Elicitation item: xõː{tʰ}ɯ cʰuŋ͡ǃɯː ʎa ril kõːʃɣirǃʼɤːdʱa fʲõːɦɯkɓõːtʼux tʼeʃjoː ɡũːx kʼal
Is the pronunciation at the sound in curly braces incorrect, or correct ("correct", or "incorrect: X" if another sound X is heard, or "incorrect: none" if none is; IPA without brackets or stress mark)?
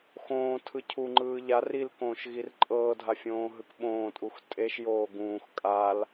correct